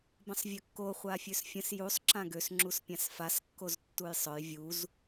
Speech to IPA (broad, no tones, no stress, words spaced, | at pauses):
bə̃sˤvʲœkːo χʷafʲøsfʲə̃s jusˤ ǁãɡøs ŋ͡ǁuspʲãsfas kːoztːujsˤœj vʲuz